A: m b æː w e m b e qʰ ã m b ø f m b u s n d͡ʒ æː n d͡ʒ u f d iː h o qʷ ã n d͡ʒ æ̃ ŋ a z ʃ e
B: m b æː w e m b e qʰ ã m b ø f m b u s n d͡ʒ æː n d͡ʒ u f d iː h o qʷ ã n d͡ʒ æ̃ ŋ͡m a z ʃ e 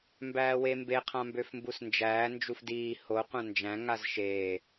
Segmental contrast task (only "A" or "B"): A